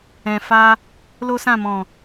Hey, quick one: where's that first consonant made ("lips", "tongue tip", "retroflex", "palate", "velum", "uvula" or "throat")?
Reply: lips